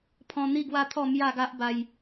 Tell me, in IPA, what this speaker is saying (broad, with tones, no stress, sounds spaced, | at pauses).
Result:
pʰ ɔ̃˧ n̪ i˥˧ ɡ w a˦ t̪ʰ ɔ˥˧ m j a˥˧ ɡ a˦ ʔ b a˧ j